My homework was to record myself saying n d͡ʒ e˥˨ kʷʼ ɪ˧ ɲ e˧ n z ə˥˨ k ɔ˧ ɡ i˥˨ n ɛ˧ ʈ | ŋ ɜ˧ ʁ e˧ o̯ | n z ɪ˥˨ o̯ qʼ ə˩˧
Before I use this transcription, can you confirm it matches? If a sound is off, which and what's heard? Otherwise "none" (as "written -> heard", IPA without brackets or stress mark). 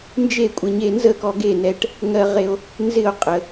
i˥˨ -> e˥˨